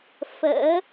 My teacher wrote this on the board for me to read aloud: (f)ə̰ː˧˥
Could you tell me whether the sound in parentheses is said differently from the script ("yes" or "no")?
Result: no